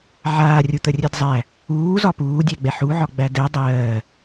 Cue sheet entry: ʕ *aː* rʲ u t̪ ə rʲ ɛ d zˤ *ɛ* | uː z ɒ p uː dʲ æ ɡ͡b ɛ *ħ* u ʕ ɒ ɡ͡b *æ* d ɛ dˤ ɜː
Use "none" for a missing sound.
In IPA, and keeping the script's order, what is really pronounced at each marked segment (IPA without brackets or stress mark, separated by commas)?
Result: aː, æ, ħ, æ